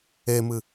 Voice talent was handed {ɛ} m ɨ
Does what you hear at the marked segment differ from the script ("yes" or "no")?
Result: yes